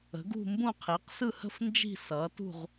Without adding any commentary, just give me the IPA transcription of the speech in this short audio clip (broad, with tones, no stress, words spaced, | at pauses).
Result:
ə̤˩˥ɡṳ˥˧mbũ˥˧qʰi˩˥q sɯ˥˧hə̤˥˧f nd͡ʒi̤˥˧sʌː˩˥tṳ˥˧ʁ